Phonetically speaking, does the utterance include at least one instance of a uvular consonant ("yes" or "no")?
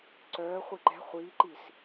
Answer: yes